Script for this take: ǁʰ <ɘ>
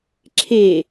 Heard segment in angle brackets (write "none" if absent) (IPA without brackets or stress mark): e